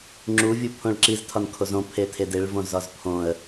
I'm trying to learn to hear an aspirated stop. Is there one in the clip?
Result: yes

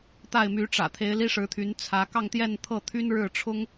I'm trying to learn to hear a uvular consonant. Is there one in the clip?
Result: no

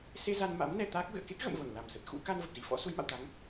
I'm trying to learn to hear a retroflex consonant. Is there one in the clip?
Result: no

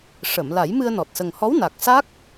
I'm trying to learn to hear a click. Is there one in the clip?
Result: no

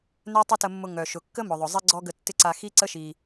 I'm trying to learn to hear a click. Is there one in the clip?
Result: yes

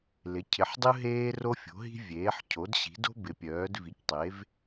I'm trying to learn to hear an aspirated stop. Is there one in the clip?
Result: yes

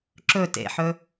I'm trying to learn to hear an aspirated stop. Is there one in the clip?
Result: no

